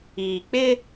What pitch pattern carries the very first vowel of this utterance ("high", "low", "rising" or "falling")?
low